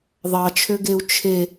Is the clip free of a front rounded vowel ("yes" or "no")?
no